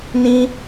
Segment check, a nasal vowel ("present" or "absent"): present